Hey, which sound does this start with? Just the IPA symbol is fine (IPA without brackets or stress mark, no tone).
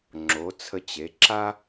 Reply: ŋ͡ǁ